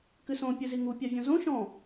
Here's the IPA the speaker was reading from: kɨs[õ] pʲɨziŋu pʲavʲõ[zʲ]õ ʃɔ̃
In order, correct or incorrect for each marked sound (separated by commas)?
correct, incorrect